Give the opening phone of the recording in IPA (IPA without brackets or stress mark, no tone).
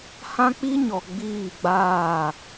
h